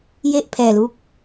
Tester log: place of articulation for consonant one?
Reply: palatal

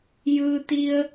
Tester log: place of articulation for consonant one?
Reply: palatal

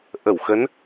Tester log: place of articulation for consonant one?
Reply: glottal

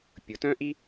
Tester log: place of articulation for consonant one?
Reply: labial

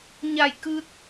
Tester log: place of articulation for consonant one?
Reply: palatal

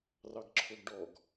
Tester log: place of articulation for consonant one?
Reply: alveolar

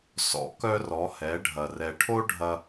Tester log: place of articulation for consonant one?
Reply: alveolar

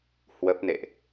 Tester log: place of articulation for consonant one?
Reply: glottal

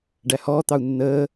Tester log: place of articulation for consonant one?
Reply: retroflex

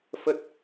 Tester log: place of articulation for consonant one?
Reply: labial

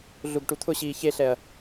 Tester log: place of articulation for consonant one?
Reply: alveolar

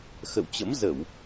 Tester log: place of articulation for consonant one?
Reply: velar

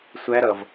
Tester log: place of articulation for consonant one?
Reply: alveolar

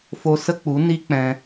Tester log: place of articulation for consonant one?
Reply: labial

